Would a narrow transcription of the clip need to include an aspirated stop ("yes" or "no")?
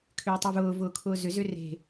yes